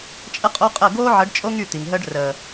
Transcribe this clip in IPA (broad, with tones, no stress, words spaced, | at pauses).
t͡ʃʼə˦qʼo˦qʼə˦˨ ɡoː˦ʕə˨˦ɖt͡ʃʼo˦ŋ y˦˨t̪i˨ŋɦəː˦ɖ rəː˨